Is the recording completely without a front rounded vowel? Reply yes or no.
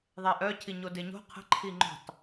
no